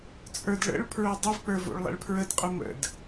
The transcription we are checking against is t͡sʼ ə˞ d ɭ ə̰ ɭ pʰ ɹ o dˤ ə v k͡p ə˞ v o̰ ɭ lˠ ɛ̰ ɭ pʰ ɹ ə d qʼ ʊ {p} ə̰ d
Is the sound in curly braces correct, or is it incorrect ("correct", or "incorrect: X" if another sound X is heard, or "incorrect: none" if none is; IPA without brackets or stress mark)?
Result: incorrect: m